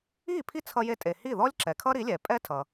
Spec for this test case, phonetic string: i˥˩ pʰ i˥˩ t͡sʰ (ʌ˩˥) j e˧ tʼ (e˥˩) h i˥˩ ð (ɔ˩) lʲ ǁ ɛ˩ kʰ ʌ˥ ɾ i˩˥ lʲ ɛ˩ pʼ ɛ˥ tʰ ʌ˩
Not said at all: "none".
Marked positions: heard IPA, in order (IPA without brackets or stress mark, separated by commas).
ʌ˧, e˩, ɔ˥